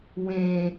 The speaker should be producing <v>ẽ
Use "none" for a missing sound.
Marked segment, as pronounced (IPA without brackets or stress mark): w